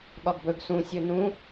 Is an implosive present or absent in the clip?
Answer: present